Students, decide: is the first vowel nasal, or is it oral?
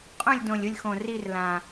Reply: nasal